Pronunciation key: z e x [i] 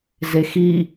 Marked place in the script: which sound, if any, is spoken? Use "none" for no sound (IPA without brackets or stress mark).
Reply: i